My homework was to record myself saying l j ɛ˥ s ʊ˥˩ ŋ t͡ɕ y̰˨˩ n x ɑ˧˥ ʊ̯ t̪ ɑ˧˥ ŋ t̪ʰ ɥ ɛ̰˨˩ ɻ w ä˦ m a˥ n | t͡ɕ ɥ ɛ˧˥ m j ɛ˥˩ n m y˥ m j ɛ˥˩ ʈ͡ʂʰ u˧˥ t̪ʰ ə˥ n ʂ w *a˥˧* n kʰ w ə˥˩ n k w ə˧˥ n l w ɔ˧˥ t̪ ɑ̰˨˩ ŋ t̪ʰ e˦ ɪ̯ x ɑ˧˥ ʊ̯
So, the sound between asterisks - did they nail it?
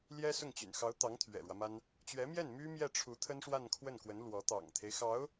yes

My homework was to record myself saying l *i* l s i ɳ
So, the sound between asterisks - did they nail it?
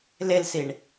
no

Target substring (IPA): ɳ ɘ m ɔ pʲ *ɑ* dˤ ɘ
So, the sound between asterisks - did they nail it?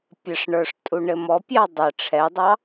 yes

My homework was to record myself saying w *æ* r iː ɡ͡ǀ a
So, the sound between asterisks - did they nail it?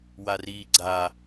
no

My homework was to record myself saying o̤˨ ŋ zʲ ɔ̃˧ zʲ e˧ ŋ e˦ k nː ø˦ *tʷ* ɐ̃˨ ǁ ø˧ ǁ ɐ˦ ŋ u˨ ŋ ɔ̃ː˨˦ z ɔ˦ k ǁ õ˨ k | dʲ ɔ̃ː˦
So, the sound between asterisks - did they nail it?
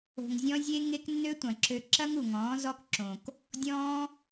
yes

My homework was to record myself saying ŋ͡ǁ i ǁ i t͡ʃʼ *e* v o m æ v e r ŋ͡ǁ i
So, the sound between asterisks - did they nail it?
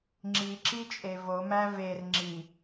yes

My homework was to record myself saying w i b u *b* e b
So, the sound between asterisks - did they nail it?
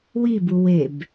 no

